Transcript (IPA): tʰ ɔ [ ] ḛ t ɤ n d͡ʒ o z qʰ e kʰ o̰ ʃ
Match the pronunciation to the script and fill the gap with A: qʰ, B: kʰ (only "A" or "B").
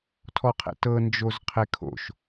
A